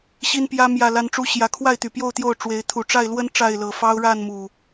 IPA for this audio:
ɕ i˦ n p j ä˦ m j ä˥˨ l a˦ n ʈ͡ʂ u˦ ɕ j ä˨˦ kʰ w a˥˨ ɪ̯ t̪ y˨˩ p j o˥˨ ʊ̯ t̪ j o˥˨ ʊ̯ ʈ͡ʂ w e˨˦ ɪ̯ t̪ʰ u˨˩ ʈ͡ʂ a˥˨ ɪ̯ l w ə˦ n ʈ͡ʂ a˥˨ ɪ̯ l ɤ˨˩ f ɑ˦ ʊ̯ ɻ a˥˨ n m u˨˩

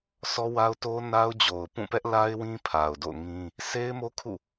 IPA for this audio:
sʰ ɔ˦ w a˦ ʊ̯ t o˦ n a˦ ʊ̯ d͡ʑ o˨ ʊ̯ p ũ˦˨ p ɛ˦ ʔ l a˦ ɪ̯ w ĩ˦ pʰ a˨ ʊ̯ d o̰˦˨ ʊ̯ ŋ ĩ˦ | sʰ e˦ ɪ̯ m o˦ kʰ ṵ˦˨

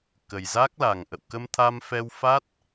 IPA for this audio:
k ə˨˩ j z a˦˥ k̚ l a˨˩ ŋ ʔ ə̰˧˨ w k ə˧ m t̪ʰ a˧ m f ɛ˧ w f a˦˥ t̚

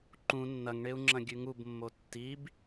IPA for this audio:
ǃ ũ nː ɐ ŋ ɳ e u̯ ŋ͡ǁ ɐ̃ ɡʲ ʉ ŋ u b mː o tː i b

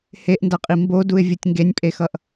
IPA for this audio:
h e ʔ n d ʌ qʼ i m b o d u ɪ̯ vʲ u tʲ ŋ ɡ e nʲ pʼ e x ʌ ʔ

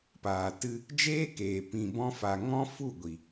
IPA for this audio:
p aː˨ t ɨ˧ | d͡ʒ eː˦ k eː˨ p ĩ˧ b ɔ̃˦ f a˧ ŋ ɔ̃˦ f u˦˨ ɡʷ i˨

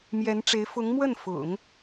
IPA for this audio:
m j ɛ˧˥ n ʈ͡ʂ e˧˥ ɪ̯ f ʊ˧˥ ŋ m w ə˥˩ n f ʊ̰˨˩˦ ŋ

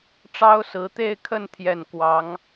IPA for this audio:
ʈ͡ʂ ɑ˥ ʊ̯ s ɹ̩˧˥ t̪ e˥˧ ɪ̯ kʰ ə˥˧ n t̪ʰ j ɛ˥˩ n k w ɑ˧˥ ŋ

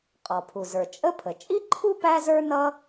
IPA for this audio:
qʼ ɔ˩ pʰ u˩ z ə˞˩ t͡ʃʼ ə˥ pʰ ə˩ t͡ʃʼ i˥ ǃʰ u˥ p æ˥ z ə˞˥ n ʌ˥

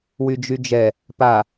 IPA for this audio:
w y d͡ʒ y d͡ʒ ɛ | p a

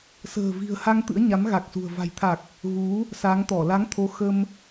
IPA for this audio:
s ə̤ː˨˩ v i̤˨˩ ə̯ h a˧ ŋ t̪ ɨ̰˧˥ ə̯ ɲ a˨˦ m ɣ a˨˩ k̚ s ṳ˨˩ ə̯ v a̤˨˩ j t̪ʰ a˨˩ k̚ | ɣ u˨˦ | s a˨˦ ŋ t̪ ɔ˧˩ l a˨˦ ŋ t̪ʰ o˨˦ x ə˧ m

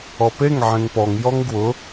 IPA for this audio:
ɔ p e ŋ ʕ ẽ ŋ p ɔ ŋ j ɔ ŋ ɡ w ʊ

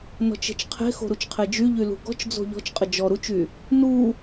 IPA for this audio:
n ɔ̤ t͡ʃ e̤ t͡ʃ qʰ e̤ x o̤ ɾ u t͡ʃ qʰ e d͡ʒ y ʎ y l ṳ ɡ ɔ̤ t͡ʃ d͡z o̤ ʎ ɔ̤ t͡ʃ qʼ ə d͡ʒ ɔ ɾ u t͡ʃ y | n u

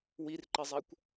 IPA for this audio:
w i r ǃ e zˤ æ kʷ

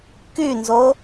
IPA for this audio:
k y n z o

